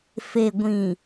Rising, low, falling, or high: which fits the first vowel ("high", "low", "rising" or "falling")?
low